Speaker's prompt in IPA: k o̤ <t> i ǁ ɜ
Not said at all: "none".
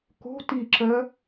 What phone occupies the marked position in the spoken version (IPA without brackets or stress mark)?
t